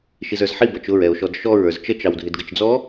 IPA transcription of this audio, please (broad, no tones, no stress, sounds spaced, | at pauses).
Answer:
ʃ i z ə˞ z ħ i b ʌ t͡ʃ ʊ ɹ ɛ o̯ ʃ ɔ d ʃ ɔ ɹ ə˞ z t͡ʃ ə t͡ʃ ɑ w dʱ ɪ d ɡ ə t͡ʃ d͡z ɔ